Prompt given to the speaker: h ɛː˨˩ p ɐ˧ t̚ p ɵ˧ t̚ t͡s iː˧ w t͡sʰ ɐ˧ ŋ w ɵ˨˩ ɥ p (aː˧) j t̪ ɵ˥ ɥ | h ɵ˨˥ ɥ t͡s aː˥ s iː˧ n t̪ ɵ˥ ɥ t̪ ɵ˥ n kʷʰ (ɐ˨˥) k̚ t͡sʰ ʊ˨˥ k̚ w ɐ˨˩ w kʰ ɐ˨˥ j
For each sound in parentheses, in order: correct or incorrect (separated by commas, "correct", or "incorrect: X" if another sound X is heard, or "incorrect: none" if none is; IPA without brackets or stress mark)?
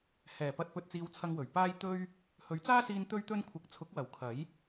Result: incorrect: aː˥, incorrect: ɐ˧